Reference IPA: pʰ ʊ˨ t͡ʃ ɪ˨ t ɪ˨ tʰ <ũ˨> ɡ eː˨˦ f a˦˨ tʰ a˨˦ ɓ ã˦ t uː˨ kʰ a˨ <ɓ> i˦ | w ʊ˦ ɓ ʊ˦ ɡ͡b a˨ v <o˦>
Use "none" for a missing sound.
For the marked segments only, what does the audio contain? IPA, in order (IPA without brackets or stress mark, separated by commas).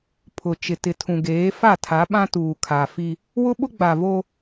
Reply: ũ˨, f, o˦